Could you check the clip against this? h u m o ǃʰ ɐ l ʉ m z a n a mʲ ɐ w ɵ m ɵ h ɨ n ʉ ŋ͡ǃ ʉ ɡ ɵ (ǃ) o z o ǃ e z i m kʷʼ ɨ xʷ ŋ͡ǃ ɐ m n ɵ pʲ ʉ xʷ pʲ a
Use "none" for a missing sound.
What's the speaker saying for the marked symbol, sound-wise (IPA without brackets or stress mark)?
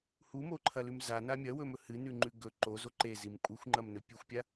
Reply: ǃ